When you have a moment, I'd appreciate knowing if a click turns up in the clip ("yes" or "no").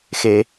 no